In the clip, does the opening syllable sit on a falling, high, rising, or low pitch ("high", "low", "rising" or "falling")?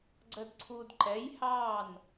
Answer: low